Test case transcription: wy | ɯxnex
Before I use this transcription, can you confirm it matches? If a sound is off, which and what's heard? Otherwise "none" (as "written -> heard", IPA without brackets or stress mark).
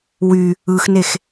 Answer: none